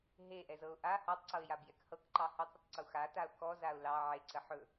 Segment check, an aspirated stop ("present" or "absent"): absent